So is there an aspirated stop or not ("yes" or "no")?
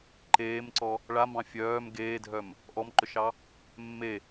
no